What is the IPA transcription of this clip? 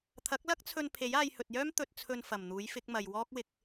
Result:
t̪ʰ ɐ˨˥ k̚ l ɐ˥ k̚ t͡sʰ ɵ˧ n pʰ e˨˥ j aː˧ j h ɵ˨ t̚ j œː˥ m t̪ ɵ˨ t̚ t͡sʰ ɵ˨ n f ɐ˨˩ m n̪ uː˨˥ j f ɪ˨˥ k̚ m ɐ˨ j w ɔː˥ k̚ w ɪ˧ k̚

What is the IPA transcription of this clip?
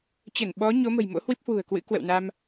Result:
t͡ɕ ə˧˩ n ɓ ɔ˨˦ ɲ o˨˦ m ə̤˨˩ j m o̰˧˥ h w i˦˥ p̚ h w ṳ˨˩ ə̯ k w ɨ̰˧˥ k w ə̰˧˨ w n a˧ m

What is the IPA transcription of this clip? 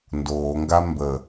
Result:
n d oː ŋ ɡ a m b ə

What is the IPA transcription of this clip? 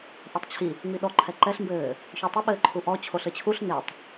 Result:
ʔ e tˤ t͡ɕʰ i | ŋ͡m i ɗ ɔ ǃʰ ɛ ǃ ɛ ɬ m b ɘː | ç o tˤ ɘ ɓ ɘː ǃʰ u ʔ ɔ t͡ɕʰ o ɬ ɘ t͡ɕʰ u ɬ n e tˤ

